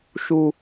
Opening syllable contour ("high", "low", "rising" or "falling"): high